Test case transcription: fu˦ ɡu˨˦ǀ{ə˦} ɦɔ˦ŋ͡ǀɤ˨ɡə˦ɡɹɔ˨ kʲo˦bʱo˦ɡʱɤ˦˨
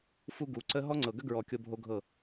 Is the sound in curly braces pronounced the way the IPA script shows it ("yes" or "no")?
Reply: yes